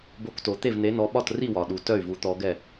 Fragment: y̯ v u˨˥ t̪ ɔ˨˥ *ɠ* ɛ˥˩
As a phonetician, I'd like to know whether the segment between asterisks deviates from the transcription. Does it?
yes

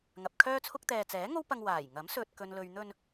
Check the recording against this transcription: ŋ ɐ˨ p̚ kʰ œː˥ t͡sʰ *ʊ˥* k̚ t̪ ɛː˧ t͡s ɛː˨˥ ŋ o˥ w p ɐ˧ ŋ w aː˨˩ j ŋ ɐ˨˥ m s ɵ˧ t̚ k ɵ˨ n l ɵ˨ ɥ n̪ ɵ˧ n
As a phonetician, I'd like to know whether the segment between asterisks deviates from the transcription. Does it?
no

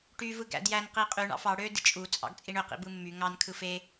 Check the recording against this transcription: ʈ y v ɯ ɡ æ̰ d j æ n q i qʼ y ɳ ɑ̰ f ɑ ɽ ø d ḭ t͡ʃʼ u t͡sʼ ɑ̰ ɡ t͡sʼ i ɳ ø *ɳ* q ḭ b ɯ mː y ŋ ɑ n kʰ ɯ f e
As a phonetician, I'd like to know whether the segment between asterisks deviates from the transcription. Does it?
yes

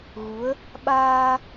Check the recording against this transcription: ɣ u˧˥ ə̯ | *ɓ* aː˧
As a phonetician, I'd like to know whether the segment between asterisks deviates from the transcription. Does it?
no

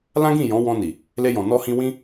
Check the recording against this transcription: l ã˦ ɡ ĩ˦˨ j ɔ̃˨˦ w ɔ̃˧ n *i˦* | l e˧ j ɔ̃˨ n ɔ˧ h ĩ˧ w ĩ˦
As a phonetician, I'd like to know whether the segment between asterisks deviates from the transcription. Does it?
yes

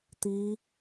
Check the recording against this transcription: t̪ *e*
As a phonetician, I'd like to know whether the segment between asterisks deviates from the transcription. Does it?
yes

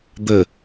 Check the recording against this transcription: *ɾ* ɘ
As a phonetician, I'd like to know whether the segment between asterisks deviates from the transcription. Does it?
yes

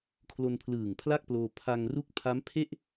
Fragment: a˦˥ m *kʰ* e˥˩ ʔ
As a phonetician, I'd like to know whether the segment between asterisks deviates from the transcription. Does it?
yes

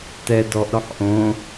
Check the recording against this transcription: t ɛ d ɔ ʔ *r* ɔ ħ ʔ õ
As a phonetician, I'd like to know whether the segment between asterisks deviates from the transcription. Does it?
yes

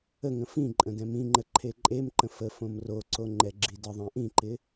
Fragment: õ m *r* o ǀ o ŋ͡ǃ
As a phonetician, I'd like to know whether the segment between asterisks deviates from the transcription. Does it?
no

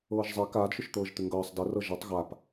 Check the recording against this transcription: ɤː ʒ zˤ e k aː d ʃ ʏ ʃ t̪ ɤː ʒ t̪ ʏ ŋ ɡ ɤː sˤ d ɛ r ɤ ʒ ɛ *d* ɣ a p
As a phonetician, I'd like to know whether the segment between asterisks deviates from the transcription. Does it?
yes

